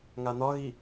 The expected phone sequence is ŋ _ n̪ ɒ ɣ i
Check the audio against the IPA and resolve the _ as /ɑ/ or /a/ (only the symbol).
a